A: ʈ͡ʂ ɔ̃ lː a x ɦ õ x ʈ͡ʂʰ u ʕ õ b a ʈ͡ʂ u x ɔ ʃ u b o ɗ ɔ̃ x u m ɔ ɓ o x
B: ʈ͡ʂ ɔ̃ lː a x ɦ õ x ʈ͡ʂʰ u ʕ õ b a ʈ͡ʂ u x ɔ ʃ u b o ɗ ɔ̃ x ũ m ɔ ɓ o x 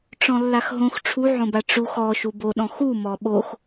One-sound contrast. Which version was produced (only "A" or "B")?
A